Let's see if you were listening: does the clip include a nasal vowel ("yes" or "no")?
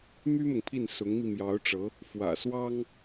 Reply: no